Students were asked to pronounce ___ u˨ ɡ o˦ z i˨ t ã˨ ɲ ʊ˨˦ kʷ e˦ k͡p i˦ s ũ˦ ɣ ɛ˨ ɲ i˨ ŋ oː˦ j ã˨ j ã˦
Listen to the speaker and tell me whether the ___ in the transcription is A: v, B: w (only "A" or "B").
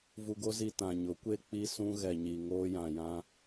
A